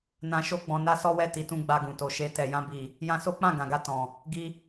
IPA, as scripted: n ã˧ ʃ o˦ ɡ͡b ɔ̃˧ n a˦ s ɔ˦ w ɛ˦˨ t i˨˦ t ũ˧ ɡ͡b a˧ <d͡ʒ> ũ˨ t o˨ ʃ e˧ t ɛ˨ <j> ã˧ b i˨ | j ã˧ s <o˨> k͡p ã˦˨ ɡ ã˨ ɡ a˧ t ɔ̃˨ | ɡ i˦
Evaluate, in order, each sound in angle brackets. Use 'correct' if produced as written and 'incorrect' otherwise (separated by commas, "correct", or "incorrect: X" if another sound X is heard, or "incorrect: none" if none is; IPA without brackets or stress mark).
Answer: incorrect: ɡ, correct, incorrect: o˦